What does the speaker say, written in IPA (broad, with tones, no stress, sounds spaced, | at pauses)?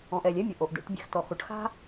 ɔ̃˨ ʔ ɛ˨ lʲ ɛ˦ mʲ ə˨ ʔ o˨ ʔ d̪ ɛ̰˦ ʈ bʲ ɛ̰˦ x t̪ ɔ˨ x o˨ ʈ x a̤˦